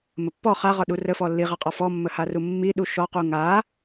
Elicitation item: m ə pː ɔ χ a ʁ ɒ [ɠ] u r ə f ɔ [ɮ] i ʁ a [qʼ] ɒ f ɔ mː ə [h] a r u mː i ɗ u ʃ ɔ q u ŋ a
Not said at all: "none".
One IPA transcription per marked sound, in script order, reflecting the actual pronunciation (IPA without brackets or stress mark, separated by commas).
ɗ, lː, qʼ, h